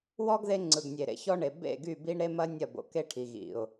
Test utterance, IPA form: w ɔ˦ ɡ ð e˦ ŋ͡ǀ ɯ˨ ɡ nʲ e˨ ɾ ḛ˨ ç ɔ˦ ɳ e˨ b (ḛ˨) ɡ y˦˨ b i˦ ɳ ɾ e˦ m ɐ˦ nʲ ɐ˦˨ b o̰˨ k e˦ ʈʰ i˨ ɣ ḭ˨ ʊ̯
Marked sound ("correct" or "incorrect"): incorrect